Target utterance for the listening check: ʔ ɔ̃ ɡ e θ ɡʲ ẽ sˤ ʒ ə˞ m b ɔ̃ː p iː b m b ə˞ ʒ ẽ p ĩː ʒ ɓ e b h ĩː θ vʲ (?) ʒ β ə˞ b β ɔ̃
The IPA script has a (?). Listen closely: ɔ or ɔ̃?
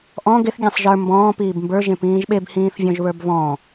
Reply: ɔ̃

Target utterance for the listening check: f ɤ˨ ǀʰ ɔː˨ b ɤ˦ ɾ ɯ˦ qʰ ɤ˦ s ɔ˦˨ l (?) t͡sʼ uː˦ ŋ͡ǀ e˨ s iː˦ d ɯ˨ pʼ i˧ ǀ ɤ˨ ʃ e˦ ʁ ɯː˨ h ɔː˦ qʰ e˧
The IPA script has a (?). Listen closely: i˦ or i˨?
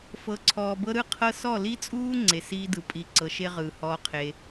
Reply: i˦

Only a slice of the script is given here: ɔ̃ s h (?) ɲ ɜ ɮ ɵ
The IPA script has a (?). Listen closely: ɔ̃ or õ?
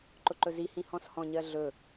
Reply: ɔ̃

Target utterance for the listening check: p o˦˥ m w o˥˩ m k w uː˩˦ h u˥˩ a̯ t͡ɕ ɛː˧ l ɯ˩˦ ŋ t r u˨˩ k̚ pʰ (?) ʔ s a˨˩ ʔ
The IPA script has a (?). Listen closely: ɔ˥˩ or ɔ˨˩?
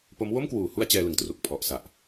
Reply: ɔ˨˩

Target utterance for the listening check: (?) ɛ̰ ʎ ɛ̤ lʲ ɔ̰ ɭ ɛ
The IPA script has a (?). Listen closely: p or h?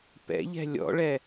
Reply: p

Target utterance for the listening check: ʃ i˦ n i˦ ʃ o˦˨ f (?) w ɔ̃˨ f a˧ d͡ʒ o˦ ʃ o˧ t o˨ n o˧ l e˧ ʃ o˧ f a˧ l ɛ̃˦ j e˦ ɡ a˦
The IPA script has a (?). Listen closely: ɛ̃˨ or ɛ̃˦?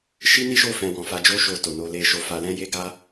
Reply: ɛ̃˨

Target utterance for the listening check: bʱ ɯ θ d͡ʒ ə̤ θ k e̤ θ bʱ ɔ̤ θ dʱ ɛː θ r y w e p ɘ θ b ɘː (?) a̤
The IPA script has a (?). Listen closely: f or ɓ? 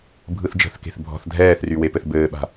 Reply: ɓ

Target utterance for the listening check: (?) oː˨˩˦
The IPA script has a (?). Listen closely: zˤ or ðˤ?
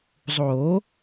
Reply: zˤ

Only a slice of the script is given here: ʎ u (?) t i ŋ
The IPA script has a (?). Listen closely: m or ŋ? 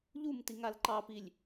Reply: m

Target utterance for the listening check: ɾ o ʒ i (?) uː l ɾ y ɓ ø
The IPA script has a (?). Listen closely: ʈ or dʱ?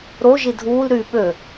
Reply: dʱ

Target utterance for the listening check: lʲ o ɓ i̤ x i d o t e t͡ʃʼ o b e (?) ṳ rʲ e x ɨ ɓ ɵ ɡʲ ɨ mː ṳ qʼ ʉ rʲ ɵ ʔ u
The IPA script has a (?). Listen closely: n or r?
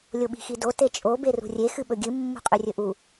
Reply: r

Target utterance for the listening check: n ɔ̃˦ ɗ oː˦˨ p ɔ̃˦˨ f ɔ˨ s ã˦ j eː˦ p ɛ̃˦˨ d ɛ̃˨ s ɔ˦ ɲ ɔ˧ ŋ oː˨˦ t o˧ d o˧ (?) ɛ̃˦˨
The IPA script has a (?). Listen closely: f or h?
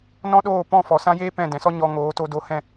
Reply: h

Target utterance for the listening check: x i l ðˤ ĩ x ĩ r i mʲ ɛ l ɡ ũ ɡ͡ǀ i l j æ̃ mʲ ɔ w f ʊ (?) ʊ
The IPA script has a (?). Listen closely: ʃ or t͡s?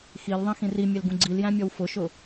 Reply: ʃ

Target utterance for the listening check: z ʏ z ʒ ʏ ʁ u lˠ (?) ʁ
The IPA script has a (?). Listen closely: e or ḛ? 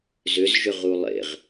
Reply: ḛ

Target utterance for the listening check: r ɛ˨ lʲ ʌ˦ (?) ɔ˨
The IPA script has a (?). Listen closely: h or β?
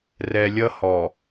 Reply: h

